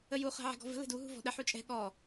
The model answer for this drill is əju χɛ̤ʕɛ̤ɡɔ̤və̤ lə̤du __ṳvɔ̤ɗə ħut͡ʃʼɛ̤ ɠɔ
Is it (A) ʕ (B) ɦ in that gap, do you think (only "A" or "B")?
B